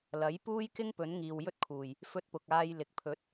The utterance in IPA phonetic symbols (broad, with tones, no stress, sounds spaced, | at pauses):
l ɐ˨˥ j p uː˥ j k ɪ˥ ŋ p ɵ˨˥ n ŋ iː˨ w j ɵ˥ t̚ kʰ uː˨˩ j | f ɵ˧ t̚ p ʊ˨ k̚ aː˧ j l ɪ˨ k̚ pʰ ɵ˨˥ t̚